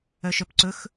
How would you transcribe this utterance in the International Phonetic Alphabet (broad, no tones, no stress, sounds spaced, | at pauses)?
œ ʃ œ p ǀ ɵ x